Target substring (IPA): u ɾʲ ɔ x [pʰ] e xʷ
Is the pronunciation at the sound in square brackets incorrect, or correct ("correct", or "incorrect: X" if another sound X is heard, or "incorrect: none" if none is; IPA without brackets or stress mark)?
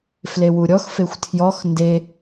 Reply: incorrect: f